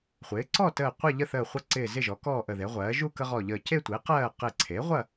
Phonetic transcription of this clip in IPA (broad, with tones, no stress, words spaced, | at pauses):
χʷɪː˩˥ ǀɔ˥˨təː˧˩ qʷɐ˥˨ʎə˥˨ θəː˧˩χʷɐ˦ǀɪː˧˩ zɪ˥˨ʒɔ˩˥ kɔː˥˨ʔə˧˩ðe˩˥ʁʷɜː˩˥ ʒu˥˨kə˦ʁɔ˧˩ʎəː˧˩ ce˥˨tʷɪː˩˥ qɜː˥˨ qɪ˧˩ǀʰe˩˥ʁʷɐ˥˨